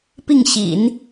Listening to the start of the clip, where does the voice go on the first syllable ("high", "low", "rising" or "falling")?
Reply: falling